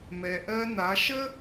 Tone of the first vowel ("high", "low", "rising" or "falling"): low